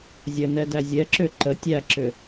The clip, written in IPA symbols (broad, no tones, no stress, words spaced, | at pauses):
zʲə nɛdæzʲɛǁʏ ǃə tʲæǁʏ